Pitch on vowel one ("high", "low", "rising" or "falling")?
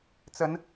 rising